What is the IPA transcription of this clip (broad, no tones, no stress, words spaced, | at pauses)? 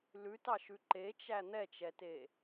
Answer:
lʉtɑʃʉ ǃet͡ʃæ n̪ɛt͡ʃɛte